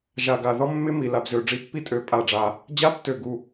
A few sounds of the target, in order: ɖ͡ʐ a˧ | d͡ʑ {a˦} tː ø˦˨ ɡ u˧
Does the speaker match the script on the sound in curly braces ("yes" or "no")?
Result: yes